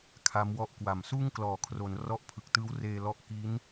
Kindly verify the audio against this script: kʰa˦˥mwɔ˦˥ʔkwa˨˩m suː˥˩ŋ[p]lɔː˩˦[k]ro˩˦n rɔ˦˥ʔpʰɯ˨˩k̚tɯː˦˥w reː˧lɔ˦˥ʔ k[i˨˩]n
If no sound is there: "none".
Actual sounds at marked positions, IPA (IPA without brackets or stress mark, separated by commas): k, kʰ, i˦˥